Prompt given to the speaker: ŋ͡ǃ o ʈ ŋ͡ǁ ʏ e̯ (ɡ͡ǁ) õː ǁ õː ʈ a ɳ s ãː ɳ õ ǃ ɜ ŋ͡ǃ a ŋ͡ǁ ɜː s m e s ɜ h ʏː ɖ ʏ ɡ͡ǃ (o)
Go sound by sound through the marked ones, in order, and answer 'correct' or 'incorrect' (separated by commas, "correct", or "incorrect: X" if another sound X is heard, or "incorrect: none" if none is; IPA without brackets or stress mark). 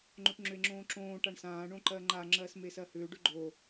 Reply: incorrect: ŋ͡ǁ, correct